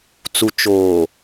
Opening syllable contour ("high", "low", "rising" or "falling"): low